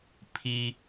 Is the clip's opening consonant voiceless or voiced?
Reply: voiceless